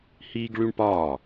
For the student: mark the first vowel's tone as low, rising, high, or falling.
high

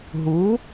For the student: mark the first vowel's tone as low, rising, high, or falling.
rising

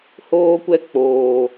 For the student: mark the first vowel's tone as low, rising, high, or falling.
high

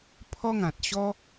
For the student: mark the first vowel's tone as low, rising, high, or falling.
high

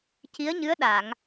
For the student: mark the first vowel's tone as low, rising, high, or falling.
rising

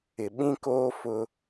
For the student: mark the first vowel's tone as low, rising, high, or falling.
low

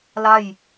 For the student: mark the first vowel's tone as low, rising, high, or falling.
falling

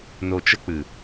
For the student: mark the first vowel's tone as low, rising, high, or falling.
low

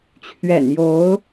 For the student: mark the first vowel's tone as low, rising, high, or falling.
low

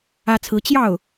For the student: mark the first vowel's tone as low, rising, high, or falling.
high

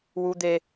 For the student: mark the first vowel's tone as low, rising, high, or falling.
high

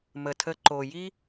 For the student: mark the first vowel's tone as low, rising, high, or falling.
low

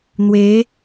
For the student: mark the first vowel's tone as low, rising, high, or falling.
rising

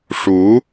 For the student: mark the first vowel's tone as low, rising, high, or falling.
rising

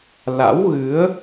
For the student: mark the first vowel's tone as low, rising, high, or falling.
rising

